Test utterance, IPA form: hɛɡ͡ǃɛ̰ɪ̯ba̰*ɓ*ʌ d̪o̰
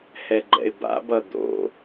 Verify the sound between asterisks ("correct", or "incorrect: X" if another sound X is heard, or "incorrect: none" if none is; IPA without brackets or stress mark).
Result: incorrect: b